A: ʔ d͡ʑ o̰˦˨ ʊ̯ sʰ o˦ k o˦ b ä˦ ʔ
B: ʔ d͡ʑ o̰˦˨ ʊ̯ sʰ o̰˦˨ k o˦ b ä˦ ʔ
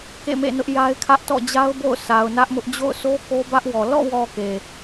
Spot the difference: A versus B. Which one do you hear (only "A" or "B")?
A